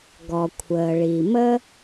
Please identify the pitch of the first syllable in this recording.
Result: low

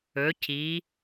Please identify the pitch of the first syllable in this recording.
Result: rising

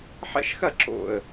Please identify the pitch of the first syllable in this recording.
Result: falling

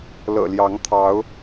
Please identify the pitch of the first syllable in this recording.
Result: low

